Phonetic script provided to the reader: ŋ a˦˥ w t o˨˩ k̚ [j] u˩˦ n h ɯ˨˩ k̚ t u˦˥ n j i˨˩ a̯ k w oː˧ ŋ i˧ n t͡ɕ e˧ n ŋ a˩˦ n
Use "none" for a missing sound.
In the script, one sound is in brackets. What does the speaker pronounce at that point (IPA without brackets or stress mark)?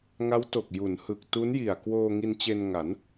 j